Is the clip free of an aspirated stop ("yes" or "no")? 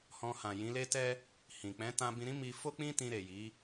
yes